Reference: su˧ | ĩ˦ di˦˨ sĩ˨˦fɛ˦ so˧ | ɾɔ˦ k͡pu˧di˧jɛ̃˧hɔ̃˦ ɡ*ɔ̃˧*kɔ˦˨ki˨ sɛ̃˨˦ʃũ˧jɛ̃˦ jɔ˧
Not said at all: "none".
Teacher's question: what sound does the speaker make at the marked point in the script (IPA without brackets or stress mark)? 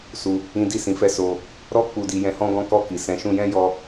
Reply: ɔ̃˦